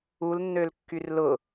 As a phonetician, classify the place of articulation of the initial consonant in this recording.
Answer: alveolar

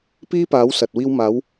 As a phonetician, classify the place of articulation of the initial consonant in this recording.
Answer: labial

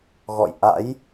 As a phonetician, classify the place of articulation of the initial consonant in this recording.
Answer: velar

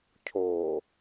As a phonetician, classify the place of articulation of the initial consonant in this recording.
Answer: palatal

